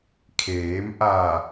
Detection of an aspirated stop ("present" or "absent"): present